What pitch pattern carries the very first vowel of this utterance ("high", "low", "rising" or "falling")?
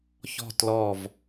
falling